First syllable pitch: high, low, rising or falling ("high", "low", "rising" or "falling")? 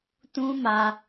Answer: high